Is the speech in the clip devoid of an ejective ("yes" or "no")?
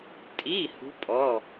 no